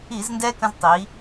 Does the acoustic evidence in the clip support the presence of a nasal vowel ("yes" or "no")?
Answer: yes